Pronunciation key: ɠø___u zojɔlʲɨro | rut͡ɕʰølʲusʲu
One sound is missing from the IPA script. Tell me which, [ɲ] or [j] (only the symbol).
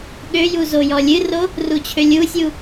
j